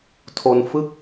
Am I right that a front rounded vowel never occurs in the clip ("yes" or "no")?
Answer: yes